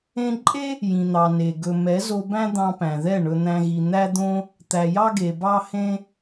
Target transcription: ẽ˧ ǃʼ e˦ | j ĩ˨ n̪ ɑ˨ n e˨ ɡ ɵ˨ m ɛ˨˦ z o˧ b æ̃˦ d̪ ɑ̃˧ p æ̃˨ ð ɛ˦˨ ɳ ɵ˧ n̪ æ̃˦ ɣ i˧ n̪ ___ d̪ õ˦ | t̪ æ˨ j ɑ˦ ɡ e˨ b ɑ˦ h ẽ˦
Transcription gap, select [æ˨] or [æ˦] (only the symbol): æ˦